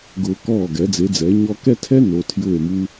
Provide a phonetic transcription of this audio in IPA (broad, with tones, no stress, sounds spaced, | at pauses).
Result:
ɡ ʊː˧ k ɔː˥˩ ɡ ɛ˩˥ d͡z e˩˥ d͡z ɛ˩˥ e̯ ɲ ɔ˥ k ɛ˥ tʰ ɛ˥ n o˩˥ tʰ j ʊː˥˩ e̯ m u˥